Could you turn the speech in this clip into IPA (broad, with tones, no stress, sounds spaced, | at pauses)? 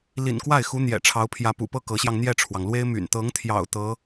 l ḭ˨˩ n k w a˥˩ ɪ̯ x u˧˥ n̪ j ɛ̰˨˩ ʈ͡ʂʰ ɑ˧˥ ʊ̯ pʰ j ä˧˥ p ṵ˨˩ p ɤ˥˩ k ɤ˧˥ ɕ j ɑ˧ ŋ n̪ j ɛ˥˩ ʈ͡ʂʰ w ɑ˩ ŋ l w e˥ ɪ̯ m y̰˨˩ n t̪ ɤ˧˥ ŋ t̪ʰ j ɑ̰˨˩ ʊ̯ t̪ ɤ˧˥